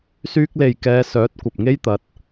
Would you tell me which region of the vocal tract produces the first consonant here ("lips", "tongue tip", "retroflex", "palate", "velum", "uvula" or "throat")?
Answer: tongue tip